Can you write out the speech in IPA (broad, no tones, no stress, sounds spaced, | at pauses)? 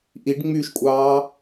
ʔ i ɖ ŋ͡m y ʃ kʷʼ ɑː